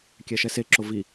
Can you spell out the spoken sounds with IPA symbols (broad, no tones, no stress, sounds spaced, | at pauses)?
kʲ ɛ ʃ ɛ s e ǁ o v i